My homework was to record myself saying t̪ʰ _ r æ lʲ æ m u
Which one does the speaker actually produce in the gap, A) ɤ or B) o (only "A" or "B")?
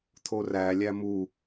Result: B